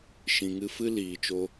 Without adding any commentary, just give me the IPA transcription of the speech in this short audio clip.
ʃĩ˨ŋɨ˧fɨ˦ liː˨t͡ʃo˦

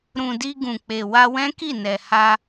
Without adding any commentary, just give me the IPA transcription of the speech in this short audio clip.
ɾũ˨di˧ ɡũ˨k͡pe˨ wa˧wɛ̃˦ki˦˨ nɛ˨ha˧

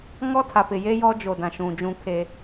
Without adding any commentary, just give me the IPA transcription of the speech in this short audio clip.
ŋɔ˦tʰa˨pɪ˨ je˦ jɔ˦ d͡ʒo˨dã˨ʃũ˨ d͡ʒũ˦kʰe˦

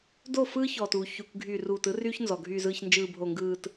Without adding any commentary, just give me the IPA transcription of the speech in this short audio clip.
do˦˨fɯː˦çɔː˨tuː˨ çy˨kʷɡʱy˨ruː˨t ɯ˦ryː˦çnzɔ˨ ɡʱyː˨zɯː˨ç nd͡ʒɯː˨bʱo˨ŋɡɯː˨t

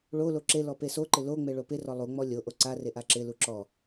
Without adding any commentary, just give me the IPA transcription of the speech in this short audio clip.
ɭolo ǁelɔ pesoǃɪ loŋ͡me ɭopɪrɔ lˠuŋ͡mɔ lʲoʔo ǀa reʔaǁɪlu ǁɔ

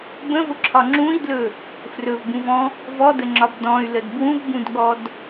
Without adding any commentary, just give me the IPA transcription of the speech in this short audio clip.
bə̃vʊǁʰɒ ŋ͡ǁũi̯dlɵ | frɵvbũvɔ̃ | vɔdəŋ͡ǁɒb dɔ̃y̯ləd bwũvbũdɠɔd

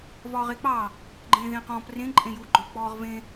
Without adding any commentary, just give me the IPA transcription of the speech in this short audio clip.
vɒːʁek͡pɑ | ɡ͡ǃẽːðẽːqɔ̃ːp rẽ ǃʼẽju ɡ͡ǃɔ̃pk͡pɔːʁvẽ

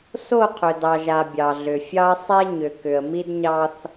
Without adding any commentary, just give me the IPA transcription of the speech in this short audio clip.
so˦˨qʰʏ˨dɑ˨ʒa˨ bʲɑ˨ɮʏ˨fʲɑ˦ə̯ sˤe˦ɲʏ˨ kʏ˨ə̯mi˦dɲɑ˦θ

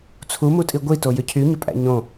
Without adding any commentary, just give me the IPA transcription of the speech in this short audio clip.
t͡sʰumutʼi ɡʷitojʏ cʰyɲʏpʼæ̰ ɲõ

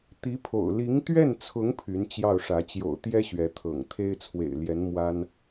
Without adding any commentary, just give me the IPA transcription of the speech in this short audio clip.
t̪i˧˥ pʰo̰˨˩ʊ̯ li˧˥ŋt̪ɥɛ˥˩nt͡sʰʊ˧˥ŋ pʰy˧˥nt͡ɕjɑ˥˩ʊ̯ʂä˧˥ t͡ɕjo̰˨˩ʊ̯t̪jɛ˥ ɕɥɛ˧˥t̪ʰɤ̰˨˩ŋ t̪ʰe˥ɪ̯t͡sʰwḛ˨˩ɪ̯ljɛ˧˥n mwa˥n

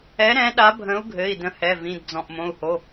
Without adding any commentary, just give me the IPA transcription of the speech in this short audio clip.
ɛ˨˥ɾɛ̃˨˥ ɗa˨˥bʱə̃˨˥u̯ɡʱɘ˩˧˩i̯ də̃˨˥hɛ˩˧˩vĩ˩˧˩d d͡zɔ̃˩˧˩ʔmõ˩˧˩u̯ho˩˧˩

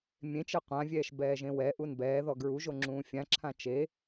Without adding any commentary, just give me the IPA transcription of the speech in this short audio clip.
mʲẽt͡ʃɛ qʷãvʲɛːʃ bɛːʒẽwɛʔun bɛːðɔ ɡɹuʒo ŋ͡ǁũːfʲãǁʰã t͡ʃe

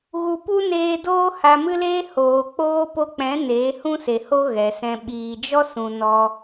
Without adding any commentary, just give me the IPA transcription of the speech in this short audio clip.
ɣu˧ pu˦neː˧doː˦ ha˧mɨ˦leː˦ hoː˨ k͡poː˧po˧k͡pɛ̃˨˦ neː˨˦hũ˦se˨ho˦ ɣɛ˨sɛ̃˧ ɓiː˨d͡ʒɔ˦sũ˨ nɔ˧

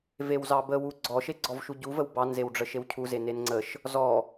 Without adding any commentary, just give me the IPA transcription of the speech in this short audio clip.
vewzɑbəwu ɡ͡ǀɔʃe ɡ͡ǀɔvʃuɟuvəw bɑnzewɖ͡ʐə ʃewcʰuze nenŋ͡ǀəʃ | zɔ

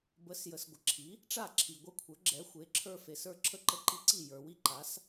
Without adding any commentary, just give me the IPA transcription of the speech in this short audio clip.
bə˩˥sjə˩s ɡʷə˩ǁʰi˩˥ | ʈ͡ʂa˥˩ǁʰi˩ ɡʷə˥˩ kʷʰə˞˩˥ɡ͡ǁɛ˩˥xʷe˩˥ ǁʰə˞˦fe˩sə˞˥˩ ǁʰə˥˩ǃə˦ǃi˦ǀi˥˩ jə˞˩wi˥˩ǃa˩˥s

